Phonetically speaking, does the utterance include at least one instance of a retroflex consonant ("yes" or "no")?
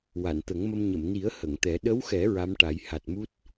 yes